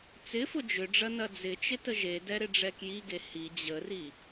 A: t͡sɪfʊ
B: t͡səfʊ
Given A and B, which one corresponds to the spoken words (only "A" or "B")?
A